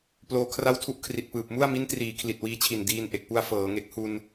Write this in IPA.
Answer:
p l oː˧ kʰ r a˥˩ w tʰ u˥˩ ʔ kʰ r i˨˩ t̚ p ɯː˨˩ p̚ m u˥˩ a̯ m i˦˥ n t r iː˩˦ kʰ l i˨˩ t̚ w iː˧ t͡ɕʰ i˨˩ n d iː˧ n ʔ e˨˩ k̚ p u˧ a̯ f ɤː˩˦ ŋ e˨˩ k̚ h u˧ n

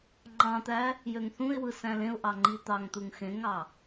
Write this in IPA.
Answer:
ŋ͡ǃ ɑ̃ t̪ æ | j ø ŋ θ ũ ɪ̯ w ɯ s æ̃ l ẽ ʊ̯ ʔ ɑ ŋ͡ǃ i t̪ ɑ ŋ t̪ u ŋ x ẽ ŋ ɑ

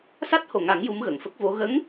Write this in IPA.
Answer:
s a˦˥ t̚ h o˨˩ ŋ a˨˩˦ ŋ j u˧˥ m ɣ ə˨˩˨ ŋ f ə˦˥ k̚ v o˧˥ ɣ ə˧˥ ŋ

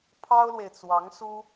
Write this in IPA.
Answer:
pʰ ɑ˥ ʊ̯ l w e˨ ɪ̯ t͡s w ɑ˧˥ ŋ s u˥

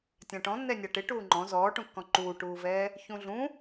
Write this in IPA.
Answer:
tʲ ã ʈ ɔ̃ nː ɛ nʲ a ʈ ɪ ʈ uː ŋ͡ǃ ɔ̃ z ɔː ʈ ũ kː ɔ̃ ǃ uː ʈ uː v ɛː | ç ũ ɮ ũ

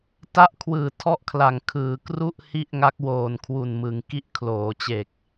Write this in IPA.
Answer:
t a˥˩ ʔ kʰ w ɯː˨˩ tʰ ɔ˥˩ ʔ kʰ l a˨˩ ŋ kʰ ɯː˩˦ k r u˥˩ ʔ h i˥˩ ʔ ŋ a˦˥ k̚ w oː˨˩ n kʰ w u˨˩ n m ɯ˩˦ ŋ k i˦˥ ʔ kʰ l oː˩˦ t͡ɕ e˨˩ k̚

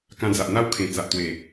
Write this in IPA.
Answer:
k ã˧ d͡z a˨ ʔ n̪ a˦ w kʰ ẽ˨˩ t͡s a˨ ʔ t̪ w e˨˩

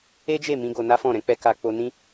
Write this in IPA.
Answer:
e˦ d͡ʒ e˦˨ m ĩ˧ ɡ o˧ n a˦ f ɔ̃˦˨ ɾ ɛ̃˧ k͡p ɛ˧ k a˧ k͡p o˧ n ĩ˦

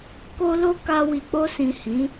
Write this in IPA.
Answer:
k o˦ l o˦ k a˧ w i˨ k͡p o˧ s ĩ˨ h ĩ˨˦

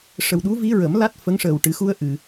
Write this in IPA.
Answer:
ʂ ə˨˩ w ɗ u˧˥ v i˧˥ ɹ ə˨˩˦ m l a˦˥ t̚ f ə˧˥ ŋ ʂ əː˨˩ w ʈ ɨ˨˩˦ x u˧ ə̯ ʔ ɨ˨˩˨

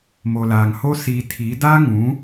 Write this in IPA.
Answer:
m oː˨ l aː˨ ŋ h oː˦ s iː˨ tʰ iː˨˦ d aː˦ ŋ ũ˨˦

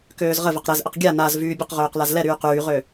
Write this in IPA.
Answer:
k øː z ʁ ə v ə q ɾ ɛ z ʔ ə q ɡʲ a n a z v yː bʲ ə q ʁ øː q l a z l ɛ ɾ yː q yː ʁ ø

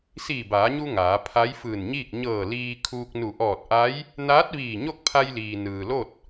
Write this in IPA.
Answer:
s iː˧˩ b aː˩˧ ɲ u˧ ŋ aː˩˧ pʰ a˧˥ j f ɯː˧˩ n ɲ iː˥˨ k̚ ɲ ɤː˧˩ l iː˧ kʰ uː˧ k̚ n u˧˩ ʔ ɔː˧˩ t̚ ʔ a˧˥ j | n aː˧˥ t̚ ʋ iː˧˩ ɲ o˥˨ k̚ pʰ a˧ j l iː˩ n ɯː˩ l o˥˨ t̚

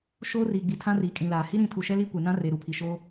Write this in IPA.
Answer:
ʃ oː˦ r iː˨ ɡ͡b i˨ tʰ ã˦ r iː˨ kʼ ĩ˨ l aː˨ h i˦ ɾ ĩ˨˦ tʰ u˨ ʃ ɛ˦ l i˦ kʷ e˨ n ã˦ r e˨ ɾ u˨ pʰ i˨ ʃ oː˦

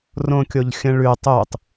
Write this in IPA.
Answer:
r õ kʲ o ʎ xʲ ə̃ ɭ ʉ tˤ u tˤ

